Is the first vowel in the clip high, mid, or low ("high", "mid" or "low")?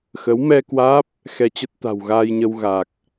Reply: mid